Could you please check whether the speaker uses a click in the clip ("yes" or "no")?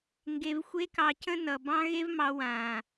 no